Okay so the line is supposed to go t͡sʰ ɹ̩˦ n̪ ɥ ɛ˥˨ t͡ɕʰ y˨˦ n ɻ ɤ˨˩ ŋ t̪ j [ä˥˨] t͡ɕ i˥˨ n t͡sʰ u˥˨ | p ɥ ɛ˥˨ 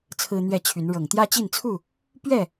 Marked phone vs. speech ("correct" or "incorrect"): incorrect